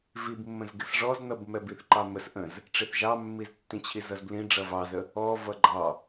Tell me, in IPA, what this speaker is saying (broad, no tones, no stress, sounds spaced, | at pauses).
v i b mː ə̃ z ɡ ɪ s ʐ ɔ z n ʌ b m ɛ b i θ ǃ ɑ m ə s ʔ ə̃ z | ʈ͡ʂ ɪ θ ʒ ɑ mː i z tː ĩ t͡ɕʰ i z ʌ z b l ĩ ɖ͡ʐ ʌ v ɑ z ə | ɔ v ʌ ɡ͡ǃ ɑ